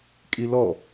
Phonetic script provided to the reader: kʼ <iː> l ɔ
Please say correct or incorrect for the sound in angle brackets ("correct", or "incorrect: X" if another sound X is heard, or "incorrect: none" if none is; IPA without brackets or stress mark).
incorrect: i